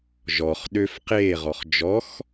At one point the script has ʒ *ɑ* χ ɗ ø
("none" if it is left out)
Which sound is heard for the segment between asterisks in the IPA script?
ɔ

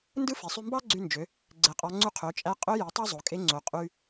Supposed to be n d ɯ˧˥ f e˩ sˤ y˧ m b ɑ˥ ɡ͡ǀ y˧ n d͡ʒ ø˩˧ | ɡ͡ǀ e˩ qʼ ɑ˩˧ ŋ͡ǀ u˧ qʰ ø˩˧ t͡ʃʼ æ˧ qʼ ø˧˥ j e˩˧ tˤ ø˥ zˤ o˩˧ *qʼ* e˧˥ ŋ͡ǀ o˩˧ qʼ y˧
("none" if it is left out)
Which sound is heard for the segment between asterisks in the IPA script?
kʼ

